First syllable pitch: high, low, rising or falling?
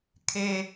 low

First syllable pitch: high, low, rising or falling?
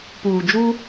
low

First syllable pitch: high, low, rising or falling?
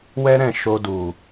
high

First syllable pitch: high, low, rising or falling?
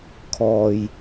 low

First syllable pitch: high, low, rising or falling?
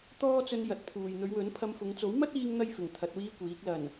high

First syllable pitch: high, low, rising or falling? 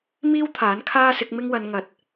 high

